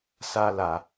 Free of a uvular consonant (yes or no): yes